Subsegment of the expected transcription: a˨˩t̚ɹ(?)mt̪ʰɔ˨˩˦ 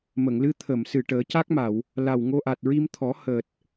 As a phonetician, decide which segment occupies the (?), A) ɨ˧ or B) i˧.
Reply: B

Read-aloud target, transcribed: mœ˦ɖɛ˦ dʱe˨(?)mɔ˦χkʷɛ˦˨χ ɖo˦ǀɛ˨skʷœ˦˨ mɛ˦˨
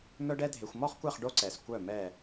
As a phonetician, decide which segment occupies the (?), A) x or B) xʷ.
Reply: B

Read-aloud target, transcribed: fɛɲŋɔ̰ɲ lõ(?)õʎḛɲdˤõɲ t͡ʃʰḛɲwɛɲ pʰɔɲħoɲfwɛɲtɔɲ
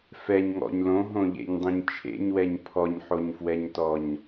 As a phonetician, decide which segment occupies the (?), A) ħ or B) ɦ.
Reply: B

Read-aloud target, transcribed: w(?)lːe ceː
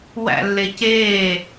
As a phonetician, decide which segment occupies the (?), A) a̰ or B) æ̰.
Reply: B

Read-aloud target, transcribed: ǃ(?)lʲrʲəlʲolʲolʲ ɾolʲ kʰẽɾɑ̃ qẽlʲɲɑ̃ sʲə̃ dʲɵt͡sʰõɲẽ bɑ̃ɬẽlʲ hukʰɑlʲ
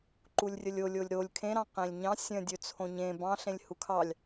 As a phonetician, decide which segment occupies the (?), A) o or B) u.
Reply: B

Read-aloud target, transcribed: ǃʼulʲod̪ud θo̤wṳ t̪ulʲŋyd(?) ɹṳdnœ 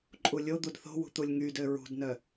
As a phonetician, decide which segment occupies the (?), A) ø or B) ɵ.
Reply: A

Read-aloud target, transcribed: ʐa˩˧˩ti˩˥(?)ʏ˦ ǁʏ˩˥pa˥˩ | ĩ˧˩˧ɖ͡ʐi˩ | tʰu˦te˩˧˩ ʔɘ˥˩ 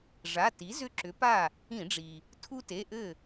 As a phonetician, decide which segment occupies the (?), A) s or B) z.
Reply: B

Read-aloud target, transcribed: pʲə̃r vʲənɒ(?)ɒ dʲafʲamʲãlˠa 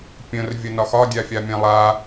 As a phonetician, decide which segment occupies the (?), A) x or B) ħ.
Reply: A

